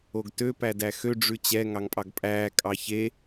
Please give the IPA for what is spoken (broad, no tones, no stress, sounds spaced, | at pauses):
o ɡ t ø p æ d æ x ø ɖ͡ʐ ʉ t͡ɕ ɛ ŋ ɑ ŋ pʼ ɑ ɡ pʼ æː kʼ ɑ ç e